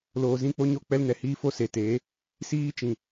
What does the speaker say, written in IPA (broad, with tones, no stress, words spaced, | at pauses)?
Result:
loː˨zĩ˦ k͡po˦ɲo˦k͡pɛ˦l nɛ˨hiː˦fo˦ se˨teː˨˦ | siː˦t͡ʃĩ˨